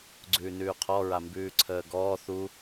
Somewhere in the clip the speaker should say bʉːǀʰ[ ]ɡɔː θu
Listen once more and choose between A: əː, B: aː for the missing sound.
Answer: A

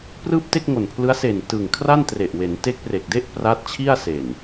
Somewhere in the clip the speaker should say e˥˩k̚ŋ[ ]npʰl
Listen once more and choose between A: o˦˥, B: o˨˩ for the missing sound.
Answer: B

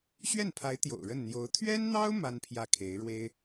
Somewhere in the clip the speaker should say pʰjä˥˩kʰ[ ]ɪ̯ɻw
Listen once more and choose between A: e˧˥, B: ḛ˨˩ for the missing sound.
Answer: A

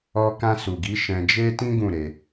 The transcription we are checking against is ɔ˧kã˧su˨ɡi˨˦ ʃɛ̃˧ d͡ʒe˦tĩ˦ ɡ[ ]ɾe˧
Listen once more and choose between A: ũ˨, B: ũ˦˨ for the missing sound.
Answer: B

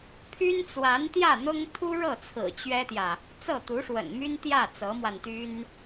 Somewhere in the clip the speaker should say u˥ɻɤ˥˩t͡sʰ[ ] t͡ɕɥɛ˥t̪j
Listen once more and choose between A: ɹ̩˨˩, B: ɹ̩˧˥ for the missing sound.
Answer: A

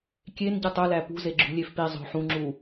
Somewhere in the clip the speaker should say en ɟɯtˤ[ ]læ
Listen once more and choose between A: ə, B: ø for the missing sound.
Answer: B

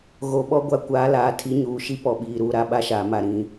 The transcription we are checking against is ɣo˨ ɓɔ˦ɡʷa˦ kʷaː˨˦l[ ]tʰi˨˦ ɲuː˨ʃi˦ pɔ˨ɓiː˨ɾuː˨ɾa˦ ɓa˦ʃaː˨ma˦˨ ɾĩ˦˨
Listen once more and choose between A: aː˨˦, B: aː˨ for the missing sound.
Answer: A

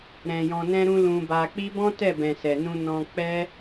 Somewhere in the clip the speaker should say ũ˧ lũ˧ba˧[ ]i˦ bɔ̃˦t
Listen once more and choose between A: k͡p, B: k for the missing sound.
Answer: A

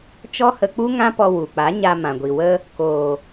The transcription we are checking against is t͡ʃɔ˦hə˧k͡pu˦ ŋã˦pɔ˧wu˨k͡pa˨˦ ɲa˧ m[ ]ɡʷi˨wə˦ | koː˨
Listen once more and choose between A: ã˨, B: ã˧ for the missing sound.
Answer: A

